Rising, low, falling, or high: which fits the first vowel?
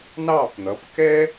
falling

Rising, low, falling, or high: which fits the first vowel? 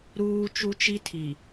high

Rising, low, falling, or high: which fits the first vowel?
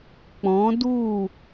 rising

